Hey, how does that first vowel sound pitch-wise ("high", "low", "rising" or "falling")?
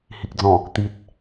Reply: low